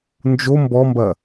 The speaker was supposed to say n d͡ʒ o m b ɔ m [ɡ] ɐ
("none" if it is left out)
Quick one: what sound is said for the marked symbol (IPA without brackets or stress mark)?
b